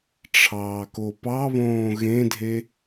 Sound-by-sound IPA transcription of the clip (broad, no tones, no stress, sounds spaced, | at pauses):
ʈ͡ʂʰ ɑː k o p ɑ β õː ɣ ẽ dʱ e